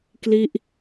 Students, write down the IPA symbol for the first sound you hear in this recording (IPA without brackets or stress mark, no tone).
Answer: k